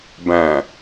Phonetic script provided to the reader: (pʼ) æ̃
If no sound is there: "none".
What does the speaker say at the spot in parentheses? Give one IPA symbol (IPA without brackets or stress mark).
b